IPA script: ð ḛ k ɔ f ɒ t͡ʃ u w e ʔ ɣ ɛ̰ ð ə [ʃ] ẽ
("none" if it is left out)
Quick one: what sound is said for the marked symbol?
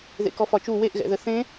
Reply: θ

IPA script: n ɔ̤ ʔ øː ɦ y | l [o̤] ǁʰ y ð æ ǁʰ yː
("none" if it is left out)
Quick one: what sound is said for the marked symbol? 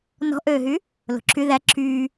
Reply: o̤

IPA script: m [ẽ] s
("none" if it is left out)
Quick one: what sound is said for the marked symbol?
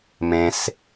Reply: ẽ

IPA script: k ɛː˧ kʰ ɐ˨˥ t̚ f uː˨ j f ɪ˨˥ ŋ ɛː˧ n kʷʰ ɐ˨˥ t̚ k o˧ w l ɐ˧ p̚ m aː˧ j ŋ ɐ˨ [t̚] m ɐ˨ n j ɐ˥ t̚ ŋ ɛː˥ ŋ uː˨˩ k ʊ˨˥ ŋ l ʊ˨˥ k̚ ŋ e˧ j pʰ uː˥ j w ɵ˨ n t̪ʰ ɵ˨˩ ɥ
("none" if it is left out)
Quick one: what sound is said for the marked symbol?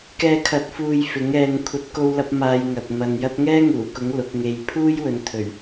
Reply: t̚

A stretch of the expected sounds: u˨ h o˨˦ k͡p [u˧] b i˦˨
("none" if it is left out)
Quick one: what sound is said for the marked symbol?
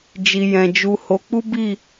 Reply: u˦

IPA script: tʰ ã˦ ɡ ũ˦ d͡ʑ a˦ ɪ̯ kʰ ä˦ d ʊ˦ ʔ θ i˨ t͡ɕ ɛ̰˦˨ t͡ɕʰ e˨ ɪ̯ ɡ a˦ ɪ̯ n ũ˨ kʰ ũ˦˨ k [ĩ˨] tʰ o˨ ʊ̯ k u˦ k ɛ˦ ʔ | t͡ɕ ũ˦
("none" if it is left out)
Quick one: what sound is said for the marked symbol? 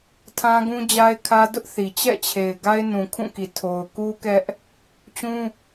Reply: i˨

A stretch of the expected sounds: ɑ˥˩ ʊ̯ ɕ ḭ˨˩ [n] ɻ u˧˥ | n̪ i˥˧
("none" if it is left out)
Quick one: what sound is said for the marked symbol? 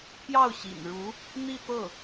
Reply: n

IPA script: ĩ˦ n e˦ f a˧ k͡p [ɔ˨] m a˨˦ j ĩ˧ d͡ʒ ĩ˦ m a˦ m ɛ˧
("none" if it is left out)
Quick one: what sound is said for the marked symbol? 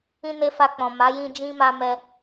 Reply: ɔ̃˨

